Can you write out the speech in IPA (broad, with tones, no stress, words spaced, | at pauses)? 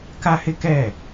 ka˦hɪ˦kɛ˦˨